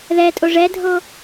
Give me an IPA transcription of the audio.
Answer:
ð ɛ tʼ o ʐ ɛ dʱ o

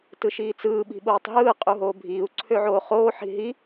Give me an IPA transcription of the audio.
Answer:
t ɯ ʃ iː t͡s ɯː ɓ i̤ ɓ oː tˤ ɦ ɯː qʼ u ɦ oː bʱ iː u̯ ǀʰ ø ʕ oː χ oː ħ i̤ ɦ i

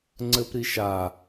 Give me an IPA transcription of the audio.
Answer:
ŋ͡ǀ ɘ p ɾ i ʃ a

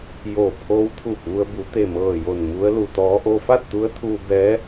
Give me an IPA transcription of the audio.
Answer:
j o˧˩ pʰ oː˧˥ w t̪ʰ uː˧˩ p̚ ʋ u˧ ə̯ b u˩˧ t̪ e˧˩ m ɤː˧˩ j o˧˩ n m u˧˥ ə̯ l u˩ t̪ ɔː˧˥ ʔ o˧ f a˥˨ t̚ t̪ u˧˥ ə̯ t̪ʰ uː˧ b ɛː˧˥

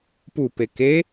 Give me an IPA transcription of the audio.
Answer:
p u p e k e

